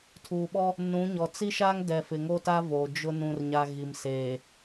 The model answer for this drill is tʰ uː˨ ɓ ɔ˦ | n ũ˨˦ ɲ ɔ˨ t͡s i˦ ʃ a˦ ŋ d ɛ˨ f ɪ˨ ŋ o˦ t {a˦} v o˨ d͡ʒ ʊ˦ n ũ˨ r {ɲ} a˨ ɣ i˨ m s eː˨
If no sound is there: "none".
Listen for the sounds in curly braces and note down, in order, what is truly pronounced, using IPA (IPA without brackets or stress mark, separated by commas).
a˦, ɲ